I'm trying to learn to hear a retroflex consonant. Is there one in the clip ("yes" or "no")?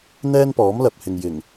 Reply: no